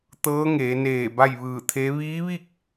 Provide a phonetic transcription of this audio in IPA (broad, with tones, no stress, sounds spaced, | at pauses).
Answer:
t̪ ɤː˧˥ ŋ eː˩˧ n eː˧˩ b a˥˨ j ʋ ɯː˧˩ t̪ʰ e˧˥ ʋ iː˧˥ ʋ i˥˨ k̚